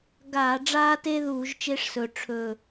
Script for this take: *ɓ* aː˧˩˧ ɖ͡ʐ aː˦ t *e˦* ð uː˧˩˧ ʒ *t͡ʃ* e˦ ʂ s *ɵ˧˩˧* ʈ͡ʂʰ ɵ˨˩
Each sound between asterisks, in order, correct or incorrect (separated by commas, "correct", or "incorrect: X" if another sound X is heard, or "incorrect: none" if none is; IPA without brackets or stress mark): incorrect: ɡ, correct, correct, incorrect: ɵ˨˩